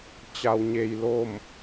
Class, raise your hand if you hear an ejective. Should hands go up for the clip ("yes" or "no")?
no